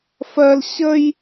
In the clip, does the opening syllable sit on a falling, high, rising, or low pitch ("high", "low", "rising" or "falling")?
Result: high